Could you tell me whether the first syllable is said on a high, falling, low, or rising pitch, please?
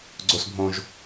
high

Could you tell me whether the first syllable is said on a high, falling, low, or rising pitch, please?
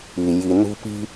low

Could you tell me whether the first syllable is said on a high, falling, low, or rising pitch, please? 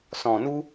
low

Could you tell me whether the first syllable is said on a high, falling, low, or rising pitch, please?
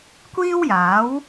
high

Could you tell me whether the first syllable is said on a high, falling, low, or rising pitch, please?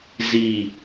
low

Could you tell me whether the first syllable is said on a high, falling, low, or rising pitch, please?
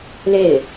falling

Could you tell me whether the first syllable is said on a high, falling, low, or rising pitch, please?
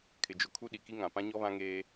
low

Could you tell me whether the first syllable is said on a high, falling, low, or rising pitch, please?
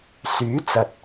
rising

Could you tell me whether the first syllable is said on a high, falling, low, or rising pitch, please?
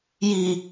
low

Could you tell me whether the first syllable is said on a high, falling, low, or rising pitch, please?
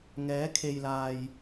rising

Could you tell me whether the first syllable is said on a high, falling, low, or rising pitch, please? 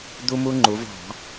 high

